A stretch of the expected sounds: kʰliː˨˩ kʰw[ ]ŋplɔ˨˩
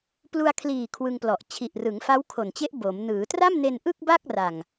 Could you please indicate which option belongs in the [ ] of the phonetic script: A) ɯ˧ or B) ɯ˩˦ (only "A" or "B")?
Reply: A